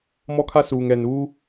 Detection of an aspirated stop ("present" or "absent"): present